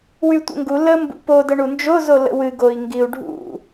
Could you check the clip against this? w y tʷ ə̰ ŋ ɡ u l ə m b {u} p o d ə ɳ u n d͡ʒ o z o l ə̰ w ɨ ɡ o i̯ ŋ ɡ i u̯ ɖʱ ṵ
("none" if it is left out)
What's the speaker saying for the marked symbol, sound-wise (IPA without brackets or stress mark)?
ṵ